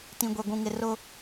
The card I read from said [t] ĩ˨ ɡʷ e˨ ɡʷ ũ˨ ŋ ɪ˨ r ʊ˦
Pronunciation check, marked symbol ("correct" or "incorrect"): correct